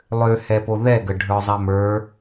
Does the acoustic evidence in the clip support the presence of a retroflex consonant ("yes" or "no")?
yes